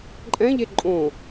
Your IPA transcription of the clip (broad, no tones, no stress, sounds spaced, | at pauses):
ǃʼ ɛ̃ ʎ e ǃʼ õ